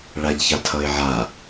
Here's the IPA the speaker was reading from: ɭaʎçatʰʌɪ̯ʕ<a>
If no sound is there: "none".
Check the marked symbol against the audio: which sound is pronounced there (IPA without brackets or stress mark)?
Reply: a